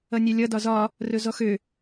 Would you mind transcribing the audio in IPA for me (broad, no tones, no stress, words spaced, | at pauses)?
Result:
ʌnʲɛlʲʌ dɒzɒ | rɵzɔxø